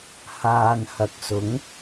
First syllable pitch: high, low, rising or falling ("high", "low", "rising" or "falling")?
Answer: low